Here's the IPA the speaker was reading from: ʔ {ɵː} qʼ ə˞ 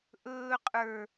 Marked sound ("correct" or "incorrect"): correct